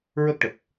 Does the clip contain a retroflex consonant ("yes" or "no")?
yes